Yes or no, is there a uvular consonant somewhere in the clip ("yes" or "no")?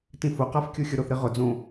yes